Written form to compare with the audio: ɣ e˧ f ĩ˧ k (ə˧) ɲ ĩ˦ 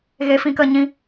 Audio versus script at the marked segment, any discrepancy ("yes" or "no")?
no